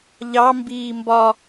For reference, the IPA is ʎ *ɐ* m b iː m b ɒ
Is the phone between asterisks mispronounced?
yes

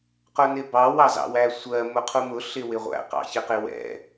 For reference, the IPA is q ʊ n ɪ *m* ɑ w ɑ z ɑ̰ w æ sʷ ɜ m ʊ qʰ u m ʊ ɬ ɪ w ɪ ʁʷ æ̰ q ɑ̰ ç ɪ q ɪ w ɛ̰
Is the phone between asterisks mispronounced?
yes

